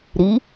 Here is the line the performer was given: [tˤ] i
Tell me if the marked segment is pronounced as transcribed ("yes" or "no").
no